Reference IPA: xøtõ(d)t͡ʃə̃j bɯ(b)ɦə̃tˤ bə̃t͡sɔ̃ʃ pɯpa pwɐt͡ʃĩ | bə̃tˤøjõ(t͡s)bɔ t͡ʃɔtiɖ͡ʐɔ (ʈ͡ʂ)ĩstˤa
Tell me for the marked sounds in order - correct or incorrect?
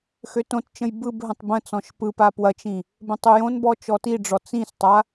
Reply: incorrect: t, correct, incorrect: n, incorrect: t͡s

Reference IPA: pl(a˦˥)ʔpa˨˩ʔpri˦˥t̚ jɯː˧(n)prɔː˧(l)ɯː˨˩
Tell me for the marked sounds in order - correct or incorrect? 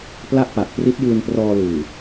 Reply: incorrect: a˥˩, correct, correct

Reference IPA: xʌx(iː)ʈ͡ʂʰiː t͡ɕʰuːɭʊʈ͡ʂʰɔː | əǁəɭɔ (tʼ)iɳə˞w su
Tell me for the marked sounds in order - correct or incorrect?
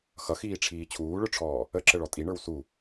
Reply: correct, correct

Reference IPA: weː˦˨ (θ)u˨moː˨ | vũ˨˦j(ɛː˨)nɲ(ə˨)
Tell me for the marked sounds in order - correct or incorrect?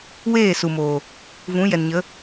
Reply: incorrect: s, incorrect: ɛ˨, incorrect: ə˨˦

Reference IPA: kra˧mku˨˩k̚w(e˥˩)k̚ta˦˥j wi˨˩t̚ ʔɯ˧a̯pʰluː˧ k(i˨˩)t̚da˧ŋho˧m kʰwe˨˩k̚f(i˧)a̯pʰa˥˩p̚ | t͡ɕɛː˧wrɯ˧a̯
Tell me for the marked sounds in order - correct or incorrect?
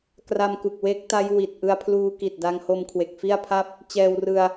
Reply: incorrect: e˦˥, correct, incorrect: i˥˩

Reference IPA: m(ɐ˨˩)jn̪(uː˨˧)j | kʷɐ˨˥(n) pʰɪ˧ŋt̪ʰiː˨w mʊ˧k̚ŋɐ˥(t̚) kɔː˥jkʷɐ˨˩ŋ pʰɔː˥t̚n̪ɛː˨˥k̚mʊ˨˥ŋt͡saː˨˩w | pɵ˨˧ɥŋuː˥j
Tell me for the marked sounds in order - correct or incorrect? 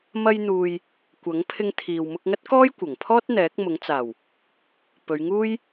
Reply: incorrect: ɐ˧, incorrect: uː˨, incorrect: ŋ, correct

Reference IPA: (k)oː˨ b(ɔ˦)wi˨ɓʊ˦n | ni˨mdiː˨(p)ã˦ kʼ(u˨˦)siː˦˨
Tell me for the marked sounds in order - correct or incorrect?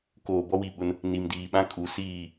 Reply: correct, correct, incorrect: ɓ, correct

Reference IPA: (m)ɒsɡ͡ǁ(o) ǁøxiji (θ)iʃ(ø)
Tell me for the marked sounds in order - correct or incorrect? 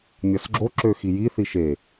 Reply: incorrect: mʲ, correct, correct, incorrect: e

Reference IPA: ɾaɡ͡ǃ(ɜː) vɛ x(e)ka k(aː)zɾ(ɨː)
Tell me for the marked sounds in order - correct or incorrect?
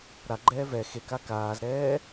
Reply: incorrect: ɛː, correct, correct, incorrect: ɛː

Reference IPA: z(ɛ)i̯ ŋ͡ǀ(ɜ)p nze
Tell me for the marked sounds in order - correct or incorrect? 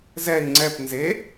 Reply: correct, incorrect: ɛ

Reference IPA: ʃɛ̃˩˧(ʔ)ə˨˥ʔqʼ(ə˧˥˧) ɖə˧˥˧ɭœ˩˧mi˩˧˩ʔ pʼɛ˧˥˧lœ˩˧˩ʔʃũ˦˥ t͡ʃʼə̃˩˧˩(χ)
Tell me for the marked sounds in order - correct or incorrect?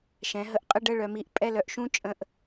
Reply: incorrect: ɦ, correct, incorrect: ʔ

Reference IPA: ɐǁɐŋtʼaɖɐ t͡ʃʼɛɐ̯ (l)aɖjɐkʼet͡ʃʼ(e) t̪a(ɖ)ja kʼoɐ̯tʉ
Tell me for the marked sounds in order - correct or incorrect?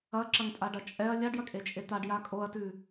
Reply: incorrect: lʲ, correct, correct

